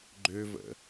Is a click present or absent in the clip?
present